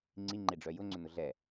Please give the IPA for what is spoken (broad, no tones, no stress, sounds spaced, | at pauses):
ŋ͡ǀ i ŋ͡ǃ e ɖ͡ʐ œ j ʊ ŋ͡ǀ ʏ n ʊ ɮ ɛ